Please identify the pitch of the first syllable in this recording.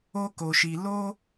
high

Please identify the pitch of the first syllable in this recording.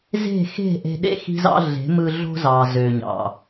falling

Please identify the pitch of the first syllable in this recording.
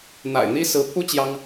low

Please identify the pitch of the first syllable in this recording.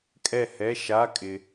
falling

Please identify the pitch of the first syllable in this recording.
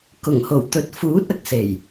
low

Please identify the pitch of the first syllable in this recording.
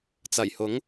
low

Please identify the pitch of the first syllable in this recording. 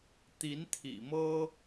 rising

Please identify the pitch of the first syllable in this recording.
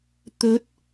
rising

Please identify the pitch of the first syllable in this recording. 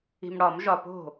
low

